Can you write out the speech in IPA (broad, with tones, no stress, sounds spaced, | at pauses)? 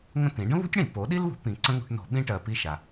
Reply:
ŋ ə̃˥ t ĩ˨˥ ɖ ə̃˥ β ṳ˥ tʲ ɽ ĩ˧˩˧ p o˨˥ ɗ i˥ l β ṳ˨˥ p ĩ˧ ǀ ə̃˥ ŋ ṳ˧˩˧ ʈ n o̤˧˩˧ ɓ ĩ˥ ʈ ɜ˧ p i˥ ʃ a˧